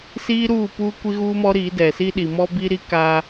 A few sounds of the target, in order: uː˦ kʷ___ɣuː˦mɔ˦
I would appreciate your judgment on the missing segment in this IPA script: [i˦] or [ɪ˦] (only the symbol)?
i˦